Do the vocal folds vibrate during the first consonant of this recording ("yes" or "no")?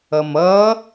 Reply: yes